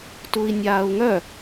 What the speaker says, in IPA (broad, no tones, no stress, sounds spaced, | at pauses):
t u i̯ nʲ aː u̯ ŋ œ